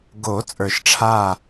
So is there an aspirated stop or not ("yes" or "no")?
yes